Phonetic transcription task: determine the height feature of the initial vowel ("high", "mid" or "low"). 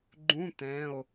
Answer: high